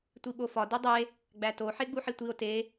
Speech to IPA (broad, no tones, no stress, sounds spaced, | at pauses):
tʷ i ɓ o f ɒ d i dˤ e | ɡ͡b æ t o ħ e ɡ͡b u ħ i tʷ i o̯ t e